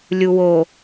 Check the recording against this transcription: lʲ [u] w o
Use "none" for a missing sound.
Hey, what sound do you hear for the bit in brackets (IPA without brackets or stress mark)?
u